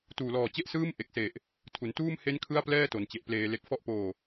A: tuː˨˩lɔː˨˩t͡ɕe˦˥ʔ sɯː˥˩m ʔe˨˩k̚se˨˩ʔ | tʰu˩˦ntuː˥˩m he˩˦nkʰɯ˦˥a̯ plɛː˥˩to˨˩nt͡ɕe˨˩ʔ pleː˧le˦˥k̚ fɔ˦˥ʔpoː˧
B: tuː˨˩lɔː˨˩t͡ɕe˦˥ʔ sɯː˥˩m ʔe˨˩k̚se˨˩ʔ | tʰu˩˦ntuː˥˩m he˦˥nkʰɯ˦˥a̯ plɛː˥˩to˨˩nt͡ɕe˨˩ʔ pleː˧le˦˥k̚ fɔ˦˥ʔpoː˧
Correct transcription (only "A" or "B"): B